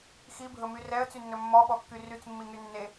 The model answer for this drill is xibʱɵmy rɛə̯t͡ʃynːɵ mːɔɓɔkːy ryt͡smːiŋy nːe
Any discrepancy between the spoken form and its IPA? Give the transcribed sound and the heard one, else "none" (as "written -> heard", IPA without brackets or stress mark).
t͡ʃ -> t͡s